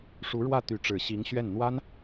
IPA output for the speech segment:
ʂu˧˥ɻwä˥˩ t̪y˧˥ ʈ͡ʂɻ̩˨˩ɕi˧˥ŋ ɕɥɛ˥˩n n̪wa˥n

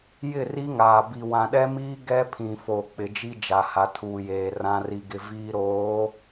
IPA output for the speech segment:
jɪ˦˨ri˦ŋaː˨ bi˨wã˨ɗɛ˦miː˦ ɡɛ˦pʰĩ˨fo˨ k͡pɪ˨d͡ʒi˦d͡ʒa˨ ha˦tʰuː˦jeː˦ rã˦ri˦ɡɪ˦ viː˦ɾoː˨˦

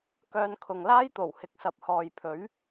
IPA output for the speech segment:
kœː˧nkʰʊ˨ŋlaː˥j t̪o˨˩w hɪ˨k̚sɐ˨p̚hɔː˨jpʰɵ˨˥ɥ

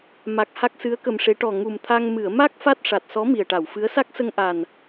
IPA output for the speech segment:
ma˨˩k̚ ha˦˥k̚sɨ˧˥ə̯kə˧mʂe˧˥ ʈɔ˨˩ ŋu˨˩mt̪ʰa˧ŋ mɨ˨˩˨ə̯ma˦˥k̚ fa˦˥t̚ʂa˨˩t̚sɔ˧˥ mi˨˩ə̯ʈa˨˩˨wfɨ˧˥ə̯ sa˦˥k̚ sə˧ŋʔa˨˩n

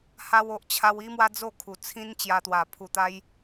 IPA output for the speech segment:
ha˧wo˨ʔt͡ɕʰa˧w i˦mwa˦ d͡zo˥˧kʰu˨˩t͡sʰĩ˦n t͡ɕja˧t̪wa˨˩ pʰu˧t̪a˦j

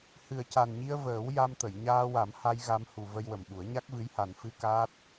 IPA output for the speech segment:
hɨ˨˩ə̯ca˨˩nɲi˧ə̯ vəː˨˩˦w ja˧mt̪ə˨˩˨j ɲaː˧wa˨˩˦mha˧j ɣa˧mhu˨˩ və˧jwə˨˩mɓu˨˩˦ə̯ ɲa˦˥k̚vɨ˧˥jha˨˩n fɨ˧ kaː˦˥t̚

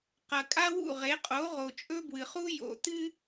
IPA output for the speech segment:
qɐ˨kʼa˦wṵ˦˨ʁe˨˦ qʼo˨˦ʁo˨t͡ʃʼɵ˦ bwɨ˨χu˦ jo̰˨tɨ˦

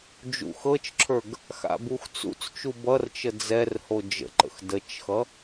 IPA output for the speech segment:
d͡ʒṵxɤt͡ʃǁʰə˞ɡ | xa̰buxt͡sṵt͡st͡ʃu bʌrt͡ʃə d͡zɛr hod͡ʒə̰ǃə̰x dət͡ʃxʌ

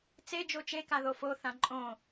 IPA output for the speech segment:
t͡se d͡ʒot͡ʃeka ðofoθã ǃʼõ

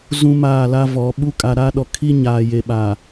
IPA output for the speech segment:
zũ˨ maː˦˨la˦vɔ˨˦ ɓu˦ kʼa˨ɾa˦ɗɔ˨ kʰi˦ ɲaː˨je˨ ɓaː˨

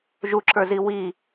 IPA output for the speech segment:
ʒuǁə˞zi wi

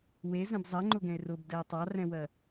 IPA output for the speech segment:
wezɛ̃b zˤɜŋ͡ǃʊɡɛ̃e̯ rʊbdɛe̯ tˤɑrɛ̃wɜ

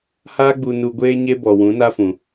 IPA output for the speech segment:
haː˦ɡ͡bu˧ nu˧ɡʷeː˦ɲe˦ bɔ˨wũ˨˦na˦fũ˨

